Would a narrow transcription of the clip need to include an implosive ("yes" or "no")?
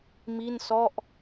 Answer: no